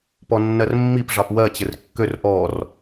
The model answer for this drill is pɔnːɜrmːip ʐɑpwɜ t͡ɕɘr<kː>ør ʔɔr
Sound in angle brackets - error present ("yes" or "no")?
no